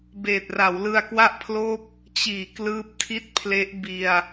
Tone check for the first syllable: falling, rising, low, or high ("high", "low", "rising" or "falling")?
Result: low